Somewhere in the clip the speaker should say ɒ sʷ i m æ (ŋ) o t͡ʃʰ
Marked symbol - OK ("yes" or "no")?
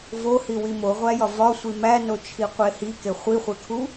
no